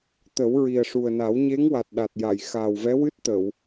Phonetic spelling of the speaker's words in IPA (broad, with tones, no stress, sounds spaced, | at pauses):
t̪ ə˨˩˦ w ɹ i˨˩ ə̯ ʂ u˨˩ ə̯ n a˨˩˦ w ɲ e˧˥ ŋ w a˨˩ t̚ ɗ a˨˩ t̚ j a˨˩˨ j x aː˨˩ w v ɛ˧˥ w ɨ˦˥ t̚ t̪ ə˨˩˨ w